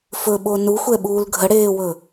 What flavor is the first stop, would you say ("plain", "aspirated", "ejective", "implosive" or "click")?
implosive